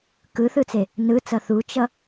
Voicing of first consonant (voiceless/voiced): voiceless